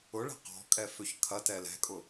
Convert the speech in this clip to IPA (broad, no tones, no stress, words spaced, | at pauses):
ʊɭɛ̤ qɔ̤kʼɛ føçkʰɐtɛ lɛ̤kʼʊ